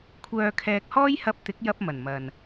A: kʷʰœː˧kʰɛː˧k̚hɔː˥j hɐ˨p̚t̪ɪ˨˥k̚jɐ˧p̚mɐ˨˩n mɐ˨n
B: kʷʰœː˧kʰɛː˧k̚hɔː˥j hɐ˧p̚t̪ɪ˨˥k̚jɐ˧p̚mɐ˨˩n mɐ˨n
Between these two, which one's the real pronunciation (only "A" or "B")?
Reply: B